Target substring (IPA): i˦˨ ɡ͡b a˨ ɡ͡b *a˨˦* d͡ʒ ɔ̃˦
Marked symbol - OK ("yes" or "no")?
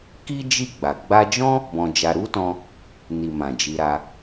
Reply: no